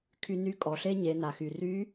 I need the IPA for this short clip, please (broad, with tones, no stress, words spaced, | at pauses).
kʰy˧ny˧˥ kʼɔ˩ɬe˥ ɲe˩˧na˩xy˩ ry˧˥